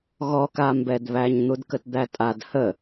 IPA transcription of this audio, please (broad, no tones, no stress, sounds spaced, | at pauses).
ɣ ɔ k a m b ɛ d β æ ɲ n̪ u d k ə t d̪ æ tʼ a d h ə